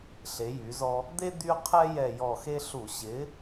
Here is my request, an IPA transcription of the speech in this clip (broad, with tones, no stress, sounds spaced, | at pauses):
ɬ e˨˥ j y˨˥ z ɔ˥ | d̪ e˥ d̪ y˥ qʰ ɛ˥ j ɛ˦˨ j ɔ˦˨ x e˥ ɬ u˧˩˧ ɕ ɪ˨˥